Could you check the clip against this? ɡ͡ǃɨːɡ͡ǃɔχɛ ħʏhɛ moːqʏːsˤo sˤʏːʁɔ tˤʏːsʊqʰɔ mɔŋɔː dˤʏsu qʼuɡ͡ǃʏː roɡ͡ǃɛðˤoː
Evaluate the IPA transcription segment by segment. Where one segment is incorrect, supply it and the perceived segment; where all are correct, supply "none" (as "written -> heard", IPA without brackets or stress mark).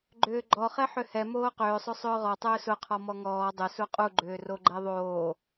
ɨː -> ʏː